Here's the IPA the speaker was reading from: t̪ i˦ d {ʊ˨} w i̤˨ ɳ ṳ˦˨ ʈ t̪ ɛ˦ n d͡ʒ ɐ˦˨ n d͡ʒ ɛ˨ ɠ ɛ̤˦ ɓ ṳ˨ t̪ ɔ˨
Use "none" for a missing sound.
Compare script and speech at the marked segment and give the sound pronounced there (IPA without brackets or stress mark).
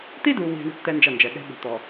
u˨